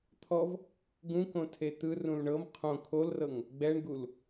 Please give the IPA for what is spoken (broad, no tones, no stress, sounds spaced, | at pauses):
t̪ʰ ɔ v | ɡ ũ k õ tʰ e t̪ ɯ r ũ l ɳ ɤ m qʰ õ kʰ o l r ɤ ŋ | ɡ͡b ɛ ɳ ɡ u l